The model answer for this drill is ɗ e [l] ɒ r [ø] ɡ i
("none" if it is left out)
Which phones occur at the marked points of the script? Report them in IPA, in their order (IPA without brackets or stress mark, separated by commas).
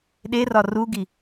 r, u